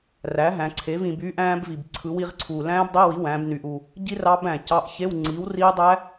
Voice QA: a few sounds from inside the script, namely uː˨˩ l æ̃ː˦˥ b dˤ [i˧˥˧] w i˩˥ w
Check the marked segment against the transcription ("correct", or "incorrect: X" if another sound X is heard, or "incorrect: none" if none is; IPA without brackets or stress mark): correct